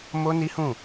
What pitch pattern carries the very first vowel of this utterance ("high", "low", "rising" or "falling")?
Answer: high